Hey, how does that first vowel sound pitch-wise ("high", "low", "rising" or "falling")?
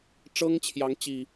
high